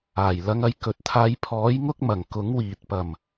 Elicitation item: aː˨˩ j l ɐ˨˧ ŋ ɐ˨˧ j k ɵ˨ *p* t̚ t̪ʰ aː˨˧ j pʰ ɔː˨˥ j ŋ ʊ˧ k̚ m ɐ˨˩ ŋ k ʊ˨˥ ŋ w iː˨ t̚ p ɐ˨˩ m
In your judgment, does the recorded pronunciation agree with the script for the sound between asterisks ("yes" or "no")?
no